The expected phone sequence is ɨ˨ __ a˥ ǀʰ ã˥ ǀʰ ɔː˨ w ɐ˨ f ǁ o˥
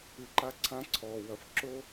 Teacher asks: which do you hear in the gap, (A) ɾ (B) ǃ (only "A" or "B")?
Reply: B